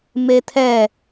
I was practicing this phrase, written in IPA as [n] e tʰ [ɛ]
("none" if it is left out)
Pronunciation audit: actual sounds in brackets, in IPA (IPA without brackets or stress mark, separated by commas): m, ɛ